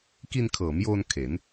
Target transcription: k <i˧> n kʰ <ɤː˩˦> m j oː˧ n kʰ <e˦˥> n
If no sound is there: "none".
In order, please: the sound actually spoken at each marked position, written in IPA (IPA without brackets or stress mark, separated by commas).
i˧, ɤː˩˦, e˩˦